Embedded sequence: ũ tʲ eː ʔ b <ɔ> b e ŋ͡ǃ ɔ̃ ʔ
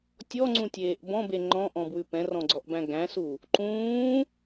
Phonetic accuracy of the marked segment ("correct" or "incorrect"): incorrect